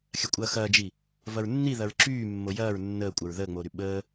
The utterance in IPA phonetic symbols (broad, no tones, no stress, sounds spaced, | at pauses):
xʲ ɐ kʷʼ ɐː x ɐː d͡ʒ i | v ɐ ɹ nː i ð ɐ ɹ ǁ yː mː o j ɐː ɹ nː əː kʷʼ ɐ ɹ ð əː ŋ͡m oː ɾ y ɓ əː